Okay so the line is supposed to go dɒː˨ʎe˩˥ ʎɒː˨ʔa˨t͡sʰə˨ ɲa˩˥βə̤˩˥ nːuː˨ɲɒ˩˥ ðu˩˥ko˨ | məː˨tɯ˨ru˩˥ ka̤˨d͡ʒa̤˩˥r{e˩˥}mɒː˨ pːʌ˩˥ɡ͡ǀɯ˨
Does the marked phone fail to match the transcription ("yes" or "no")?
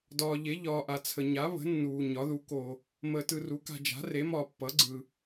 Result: no